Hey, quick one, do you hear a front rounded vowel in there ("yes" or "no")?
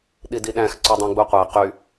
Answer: yes